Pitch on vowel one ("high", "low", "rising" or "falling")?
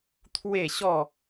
falling